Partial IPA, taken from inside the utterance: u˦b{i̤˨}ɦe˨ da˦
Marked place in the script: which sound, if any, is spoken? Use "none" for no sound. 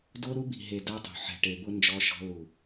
i̤˨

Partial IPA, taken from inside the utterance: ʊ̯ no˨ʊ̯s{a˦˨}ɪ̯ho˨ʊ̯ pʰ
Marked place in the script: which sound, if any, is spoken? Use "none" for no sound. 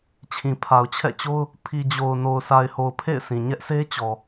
a˨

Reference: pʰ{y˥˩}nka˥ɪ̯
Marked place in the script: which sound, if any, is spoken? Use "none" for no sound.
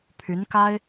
y˧˥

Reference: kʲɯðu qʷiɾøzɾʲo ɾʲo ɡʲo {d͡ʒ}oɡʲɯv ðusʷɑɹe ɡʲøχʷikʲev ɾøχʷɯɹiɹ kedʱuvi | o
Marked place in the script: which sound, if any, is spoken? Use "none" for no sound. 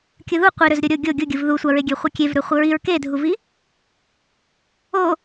ɡʲ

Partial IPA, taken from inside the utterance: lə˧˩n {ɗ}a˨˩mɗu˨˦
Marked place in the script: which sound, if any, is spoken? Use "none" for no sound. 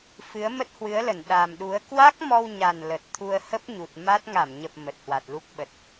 ɗ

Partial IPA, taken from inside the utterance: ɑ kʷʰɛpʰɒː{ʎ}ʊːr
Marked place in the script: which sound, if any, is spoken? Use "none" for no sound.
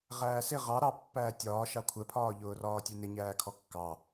ʎ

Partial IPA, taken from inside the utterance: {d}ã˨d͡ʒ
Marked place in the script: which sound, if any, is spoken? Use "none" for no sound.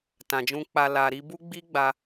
t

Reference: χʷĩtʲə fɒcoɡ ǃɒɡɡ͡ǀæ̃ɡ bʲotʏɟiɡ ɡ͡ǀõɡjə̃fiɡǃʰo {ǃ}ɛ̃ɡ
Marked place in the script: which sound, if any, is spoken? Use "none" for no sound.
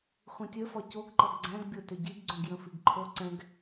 ǀ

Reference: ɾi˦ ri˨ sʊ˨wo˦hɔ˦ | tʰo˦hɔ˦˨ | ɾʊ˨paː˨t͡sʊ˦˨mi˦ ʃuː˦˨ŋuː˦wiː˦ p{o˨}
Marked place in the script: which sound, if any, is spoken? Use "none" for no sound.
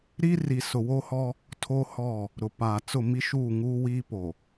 o˨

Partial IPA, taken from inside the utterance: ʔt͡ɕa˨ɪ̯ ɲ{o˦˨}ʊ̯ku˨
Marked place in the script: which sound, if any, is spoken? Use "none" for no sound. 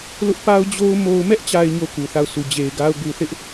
o˦˨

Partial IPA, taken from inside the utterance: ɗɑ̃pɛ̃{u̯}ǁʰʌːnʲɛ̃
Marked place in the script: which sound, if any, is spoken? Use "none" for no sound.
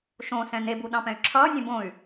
y̯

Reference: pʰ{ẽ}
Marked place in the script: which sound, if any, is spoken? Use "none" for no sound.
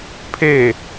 e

